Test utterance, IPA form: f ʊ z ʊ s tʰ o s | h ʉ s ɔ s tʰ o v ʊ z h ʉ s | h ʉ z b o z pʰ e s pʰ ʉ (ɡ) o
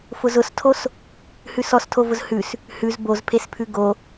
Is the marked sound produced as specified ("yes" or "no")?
yes